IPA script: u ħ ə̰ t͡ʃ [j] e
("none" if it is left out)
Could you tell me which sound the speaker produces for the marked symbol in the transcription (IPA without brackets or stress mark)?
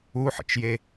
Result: j